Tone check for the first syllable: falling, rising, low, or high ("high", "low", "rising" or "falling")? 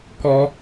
high